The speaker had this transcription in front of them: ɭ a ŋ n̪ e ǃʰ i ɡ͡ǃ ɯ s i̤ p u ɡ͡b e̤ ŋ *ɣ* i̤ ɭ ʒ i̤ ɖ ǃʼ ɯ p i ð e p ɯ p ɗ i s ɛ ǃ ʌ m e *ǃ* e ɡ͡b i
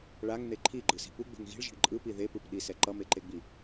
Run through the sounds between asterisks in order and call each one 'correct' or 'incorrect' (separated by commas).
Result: correct, correct